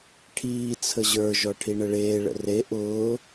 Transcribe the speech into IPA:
ʈʰ iː t͡sʰ ə ʑ ə˞ ʒ ɔ ʈʰ i ɳ ə ɭ eː ɭ ə̰ r e ʔ ʊː

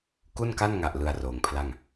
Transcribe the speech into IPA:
k u˥˩ n k a˥˩ n ŋ a˨˩ ʔ l ɯ˧ a̯ r oː˩˦ ŋ pʰ l a˥˩ ŋ

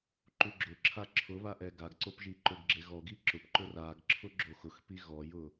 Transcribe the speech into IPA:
ǃ u ɡ͡ǁ ʊ ǁʰ a ǁʰ ʊ β a ʔ ɛ ɡ a ɡ ǀ o p ʒ i ǃ ʊ ɡ ɡ͡ǁ e ɣ ɔ ɡ i ǁ ʊ p ǃ ʊ r a ɡ ǁʰ ʊ ɡ͡ǁ o x ʊ x p i ɣ ɔ j ʊ

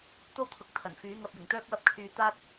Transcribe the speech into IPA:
t̪ o˥ w t̪ʰ ʊ˨˥ k̚ t̪ʰ ɐ˨˩ n f yː˨˥ ŋ ɐ˨ p̚ j ɪ˨˩ ŋ t̪ œː˥ k̚ w ɐ˥ p̚ kʰ yː˧ t̪ aː˥ t̚

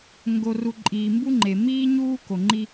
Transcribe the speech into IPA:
ŋ ɡ o˨ r u˨ ǃʼ iː˨ m b u˦ ŋ͡ǃ e˨ m iː˦ ɲ uː˦ k o˨ ŋ͡ǃ i˦

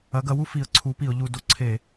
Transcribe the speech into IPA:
ɐ˨˥ ɡ ɐ˨˥ w u˥ f i˨˥ ə̯ ǀʰ u˨˥ p i˧˩˧ ʊ̯ ʎ u˧˩˧ d o˨˥ ǀʰ e˧˩˧

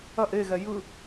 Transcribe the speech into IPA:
ɐ ʔ e ɣ ɛ j ɯ

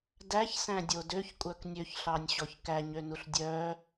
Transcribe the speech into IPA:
d æ ç s æ̃ dʲ o d ø ç kʷʼ œ k nʲ ø ç ɬ ɑ nʲ ɕ ɔ ç k æ ɲ ø n u ɬ dʲ œ

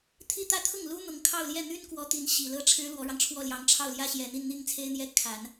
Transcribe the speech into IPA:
t̪ʰ i˥ t̪ ä˥ t̪ʰ ʊ˥˩ ŋ l u˥ n̪ ʊ˧˥ ŋ kʰ ɑ˥˧ ʊ̯ l j ɛ˥˩ n̪ y˥ n k w ɔ˧˥ t̪ i˧˥ n ɕ i˨˩ l ɤ˥˩ ʈ͡ʂʰ ɻ̩˥ l w ɔ˧˥ ɻ ɑ˧ ŋ ʈ͡ʂʰ w ɔ˥˩ l j ɑ˧˥ ŋ ʈ͡ʂʰ ɑ˥˩ ʊ̯ l j ä˥ ɕ j ɛ˨˩ n̪ i˥˧ n n̪ i˥˩ ŋ t͡sʰ e˥ ɪ̯ n̪ j ɛ˥ kʰ a˨˩˦ n

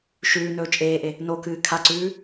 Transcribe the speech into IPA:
ʃ ʉː n ɵː t͡ʃʼ eː ʔ e | n o k ɨː kʰ a ǀ ʉː

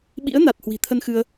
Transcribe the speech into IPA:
ɓ ḭ˧˥ ə̯ n a˨˩ t̚ h w i̤˨˩ t̪ʰ ə˧ n x ɨ˧ ə̯

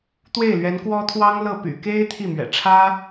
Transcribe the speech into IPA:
t̪ w e˥˩ ɪ̯ l ɥ ɛ˧˥ n k w ɔ˥ t̪ʰ w ɑ˥ ŋ l ɤ˥˩ p y̰˨˩ k e˥ ɪ̯ t̪ʰ i˥˩ m ɥ ɛ̰˨˩ ʈ͡ʂʰ ä˥

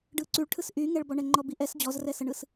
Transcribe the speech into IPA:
ɖ ɯ ǀ y ɭ ʈʰ ɯ s ʔ y ŋ ɛ ɭ b ɔ ɳ ɛ ŋ͡ǃ ɔ b i ʔ ɛ s d͡ʑ ɔ z r ɛ s ə ɳ ɯ s

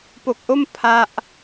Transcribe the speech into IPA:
p o˨˩ k̚ ʔ o˥˩ m pʰ a˦˥ ʔ

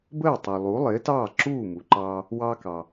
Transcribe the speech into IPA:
b əː˥˩ tˤ u˩ lˠ u˩˥ lˠ ɪː˩˥ t ɑː˥˩ ǁ uː˥˩ m u˩ ǃ ɑː˧ | w ɑ˧ k ɑ˩

